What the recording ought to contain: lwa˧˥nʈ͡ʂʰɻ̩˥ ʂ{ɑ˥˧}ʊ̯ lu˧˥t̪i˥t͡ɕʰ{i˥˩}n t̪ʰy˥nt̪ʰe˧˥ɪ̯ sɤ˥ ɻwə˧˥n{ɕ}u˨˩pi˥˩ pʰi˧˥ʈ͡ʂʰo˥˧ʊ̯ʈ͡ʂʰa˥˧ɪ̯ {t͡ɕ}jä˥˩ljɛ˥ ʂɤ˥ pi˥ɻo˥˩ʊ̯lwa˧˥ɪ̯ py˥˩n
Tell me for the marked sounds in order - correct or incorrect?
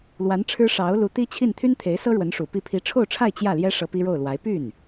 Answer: incorrect: ɑ˧˥, correct, incorrect: ʂ, correct

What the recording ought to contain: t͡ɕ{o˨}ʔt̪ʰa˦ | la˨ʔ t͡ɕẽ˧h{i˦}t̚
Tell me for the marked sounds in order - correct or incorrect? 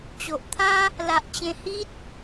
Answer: correct, correct

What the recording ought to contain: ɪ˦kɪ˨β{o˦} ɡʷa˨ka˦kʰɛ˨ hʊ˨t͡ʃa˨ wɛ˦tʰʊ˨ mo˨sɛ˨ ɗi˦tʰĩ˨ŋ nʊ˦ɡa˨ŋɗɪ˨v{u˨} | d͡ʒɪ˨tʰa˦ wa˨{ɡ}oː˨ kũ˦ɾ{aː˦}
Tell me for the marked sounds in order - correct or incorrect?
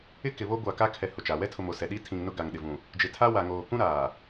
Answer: correct, incorrect: ũ˨, incorrect: ŋ, incorrect: aː˨

